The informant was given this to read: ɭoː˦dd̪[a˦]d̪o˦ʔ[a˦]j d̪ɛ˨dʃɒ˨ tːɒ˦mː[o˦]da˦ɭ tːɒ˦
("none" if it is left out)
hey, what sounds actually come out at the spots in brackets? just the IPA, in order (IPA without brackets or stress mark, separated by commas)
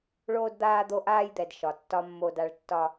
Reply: aː˦, aː˦, o˦